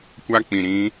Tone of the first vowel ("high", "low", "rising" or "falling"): high